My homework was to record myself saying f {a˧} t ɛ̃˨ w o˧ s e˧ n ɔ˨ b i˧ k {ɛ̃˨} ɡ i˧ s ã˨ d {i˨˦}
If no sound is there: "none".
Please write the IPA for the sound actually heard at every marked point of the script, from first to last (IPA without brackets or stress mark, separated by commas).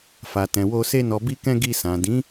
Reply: a˨, ɛ̃˧, ĩ˨˦